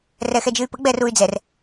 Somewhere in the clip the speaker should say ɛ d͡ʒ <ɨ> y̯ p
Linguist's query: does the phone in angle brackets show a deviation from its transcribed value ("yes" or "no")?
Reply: no